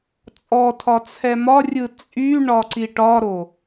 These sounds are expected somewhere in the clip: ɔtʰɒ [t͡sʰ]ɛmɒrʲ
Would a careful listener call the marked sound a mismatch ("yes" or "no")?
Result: no